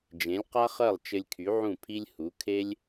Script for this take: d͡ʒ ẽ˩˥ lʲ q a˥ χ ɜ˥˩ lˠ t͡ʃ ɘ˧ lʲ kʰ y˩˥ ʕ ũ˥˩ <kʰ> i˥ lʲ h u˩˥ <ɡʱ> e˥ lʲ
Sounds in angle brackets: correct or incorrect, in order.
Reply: incorrect: pʰ, incorrect: kʰ

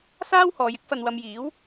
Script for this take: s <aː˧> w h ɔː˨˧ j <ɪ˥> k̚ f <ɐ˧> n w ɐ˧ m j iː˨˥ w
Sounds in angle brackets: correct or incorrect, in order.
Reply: incorrect: aː˥, correct, correct

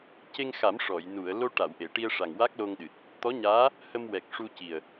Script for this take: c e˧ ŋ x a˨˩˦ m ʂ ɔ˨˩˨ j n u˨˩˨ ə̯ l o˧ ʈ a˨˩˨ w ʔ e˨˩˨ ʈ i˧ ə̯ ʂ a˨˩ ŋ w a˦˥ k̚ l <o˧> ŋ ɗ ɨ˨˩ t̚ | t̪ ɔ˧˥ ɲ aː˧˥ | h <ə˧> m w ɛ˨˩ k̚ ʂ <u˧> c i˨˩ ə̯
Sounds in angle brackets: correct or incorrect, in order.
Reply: correct, correct, correct

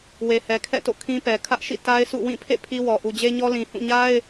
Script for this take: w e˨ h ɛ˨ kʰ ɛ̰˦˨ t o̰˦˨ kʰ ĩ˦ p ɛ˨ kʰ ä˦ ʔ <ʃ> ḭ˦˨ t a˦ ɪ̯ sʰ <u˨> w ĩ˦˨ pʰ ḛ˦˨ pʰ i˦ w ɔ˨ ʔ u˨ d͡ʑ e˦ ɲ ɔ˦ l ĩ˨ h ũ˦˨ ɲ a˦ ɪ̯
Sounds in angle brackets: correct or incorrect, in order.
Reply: correct, incorrect: ṵ˦˨

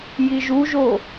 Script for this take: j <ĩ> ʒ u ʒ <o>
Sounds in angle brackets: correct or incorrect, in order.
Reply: incorrect: i, correct

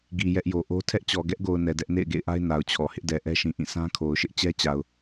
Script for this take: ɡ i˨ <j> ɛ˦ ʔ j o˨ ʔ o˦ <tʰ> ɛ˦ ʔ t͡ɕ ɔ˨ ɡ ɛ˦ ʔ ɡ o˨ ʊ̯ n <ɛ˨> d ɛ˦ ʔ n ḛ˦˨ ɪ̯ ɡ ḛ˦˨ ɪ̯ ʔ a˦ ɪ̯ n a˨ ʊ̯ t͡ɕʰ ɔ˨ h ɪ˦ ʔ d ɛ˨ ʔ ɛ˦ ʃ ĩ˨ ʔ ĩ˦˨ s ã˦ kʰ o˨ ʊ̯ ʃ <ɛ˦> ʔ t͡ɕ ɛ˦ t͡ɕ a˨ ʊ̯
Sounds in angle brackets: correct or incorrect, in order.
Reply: correct, correct, correct, incorrect: ɪ˦

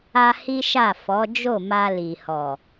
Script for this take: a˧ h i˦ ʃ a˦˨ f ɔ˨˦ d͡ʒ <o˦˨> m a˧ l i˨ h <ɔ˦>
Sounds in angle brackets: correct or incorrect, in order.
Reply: correct, incorrect: ɔ˨

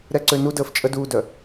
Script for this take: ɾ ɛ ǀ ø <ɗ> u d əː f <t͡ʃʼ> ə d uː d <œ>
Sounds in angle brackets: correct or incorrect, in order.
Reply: incorrect: n, correct, correct

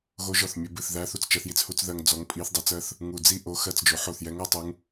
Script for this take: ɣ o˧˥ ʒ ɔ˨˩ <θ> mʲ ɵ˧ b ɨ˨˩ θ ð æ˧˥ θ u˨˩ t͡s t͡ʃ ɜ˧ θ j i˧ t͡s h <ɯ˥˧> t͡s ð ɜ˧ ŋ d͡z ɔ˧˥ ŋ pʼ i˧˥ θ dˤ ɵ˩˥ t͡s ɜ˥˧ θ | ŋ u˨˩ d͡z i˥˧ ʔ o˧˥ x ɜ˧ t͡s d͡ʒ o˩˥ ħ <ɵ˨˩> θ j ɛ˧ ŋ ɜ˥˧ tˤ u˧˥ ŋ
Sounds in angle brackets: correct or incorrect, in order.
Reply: correct, incorrect: u˥˧, incorrect: o˨˩

